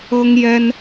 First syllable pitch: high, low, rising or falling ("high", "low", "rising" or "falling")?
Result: high